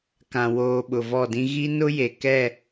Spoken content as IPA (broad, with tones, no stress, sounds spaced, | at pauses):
k ã˨ w oː˨ ɓ ʊ˨ v ɔ˦˨ d ĩ˦ ɣ i˦ n ʊ˦ j e˨ k ɛ˦˨